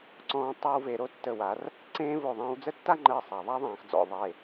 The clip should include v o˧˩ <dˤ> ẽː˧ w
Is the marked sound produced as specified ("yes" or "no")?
no